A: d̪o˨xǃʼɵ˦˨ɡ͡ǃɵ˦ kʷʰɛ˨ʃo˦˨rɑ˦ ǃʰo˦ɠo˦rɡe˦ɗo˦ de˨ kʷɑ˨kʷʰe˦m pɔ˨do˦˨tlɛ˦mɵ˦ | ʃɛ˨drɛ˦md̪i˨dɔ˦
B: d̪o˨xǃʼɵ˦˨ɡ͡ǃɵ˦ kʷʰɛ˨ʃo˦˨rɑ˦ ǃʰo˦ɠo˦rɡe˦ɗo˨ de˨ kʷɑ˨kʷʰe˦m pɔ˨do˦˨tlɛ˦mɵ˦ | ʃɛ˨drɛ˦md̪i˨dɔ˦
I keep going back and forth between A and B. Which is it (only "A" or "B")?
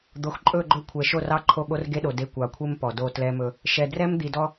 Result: B